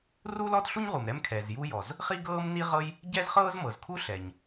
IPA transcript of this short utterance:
r u˥ l ɔ˥ t ɬ u˥ ɲ ʁ u˩ m ɾ ɛ˥ m kʰ ɛ˩ z j u˥ j ɔ˩ z | χ i˥ ɡ ɤː˥ m n i˥ ʁ ɤ˥ j | ɟ ɛ˥ z χ ɤː˥ z m ɤ˩ z kʰ u˥ ɬ ɛ˩ ɲ

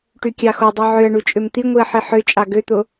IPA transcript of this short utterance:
ʈ y kʲ ɑ x o dˤ y ʕ ø ɐ̯ ɳ u t͡ʃʼ ø m t̪ i ŋʷ i ɐ̯ ħ i ħ ø t͡ʃʼ ɑ ɡ ø t̪ o

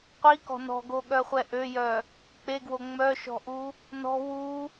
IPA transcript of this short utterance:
qʷ i k ɔ̤ n ɔ̤ ɡ o ɠ œ χʷ ɛ ʔ ø j œ | k͡p e ɡ w o ŋ͡m œ ʃ ɔ̤ ʔ u | n ɔ̤ w u

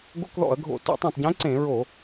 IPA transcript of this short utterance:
ɡ o̰˧˥˧ k ð ɔ̰˧˩˧ ɐ̯ ɡʱ o̰˧˩˧ t o̰˧˩˧ tˤ ũ˨˩ tˤ ɟ ẽ˨˦ ǀ ẽ˧˩˧ ɹ o˧˩˧

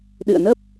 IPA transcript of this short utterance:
ɗ ɨ̰˧˨ ə̯ n ə˦˥ p̚

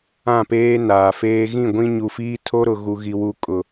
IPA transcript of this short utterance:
ã˦˨ p eː˦ n aː˨ f eː˦ ɣ ĩ˦˨ ɡʷ ĩ˦ ɲ u˨ f iː˦ tʰ o˦ ɾ ʊ˨ ɣ u˨ ɣ i˨ w u˨ kʼ ʊ˨

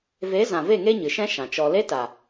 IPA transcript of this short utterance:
v e˨˦ z ã˨ v e˦˨ ŋ e˦ ɲ ɨ˨ ʃ ɛ̃˦ ʃ ã˨ t͡ʃ ɔ˧ l e˦ t a˨

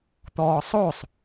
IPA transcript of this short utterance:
t̪ ɔː sˤ o sˤ

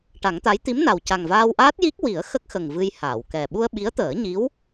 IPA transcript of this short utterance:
ʈ a˨˩˦ ŋ t̪ a˧˥ j t̪ i˧˥ m n a˨˩ w c a˨˩ ŋ v aː˧ w ʔ aː˦˥ t̚ j i˦˥ k̚ w i˨˩˦ ə̯ x ə˦˥ k̚ x ə˨˩ ŋ v ɨ˧ j h aː˨˩˨ w k ɛ˨˩ ɓ u˧ ə̯ ɓ i˧˥ ə̯ t̪ əː˨˩˦ ɲ i˧˥ w

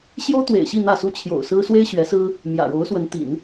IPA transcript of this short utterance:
ɕ j o˥ ʊ̯ t̪ w ḛ˨˩ ɪ̯ ɕ i˥˧ n̪ ä˥˩ s u˥ t͡ɕʰ j o̰˨˩ ʊ̯ s ɹ̩˥ s w e˥ ɪ̯ ɕ ɥ ɛ˧˥ s ɹ̩˥ | m j ä̰˨˩ ɻ o˧˥ ʊ̯ s w ə˧˥ n t̪ ḭ˨˩˦ n

